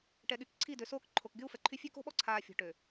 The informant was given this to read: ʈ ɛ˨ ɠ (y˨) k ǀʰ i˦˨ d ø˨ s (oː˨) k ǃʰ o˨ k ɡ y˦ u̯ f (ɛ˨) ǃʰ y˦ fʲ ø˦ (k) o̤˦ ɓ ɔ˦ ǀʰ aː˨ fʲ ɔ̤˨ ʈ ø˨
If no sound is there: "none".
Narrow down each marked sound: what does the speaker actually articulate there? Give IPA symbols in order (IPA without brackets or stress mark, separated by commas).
y˨, oː˦, ɛ˨, k